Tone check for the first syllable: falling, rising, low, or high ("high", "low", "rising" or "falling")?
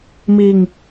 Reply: low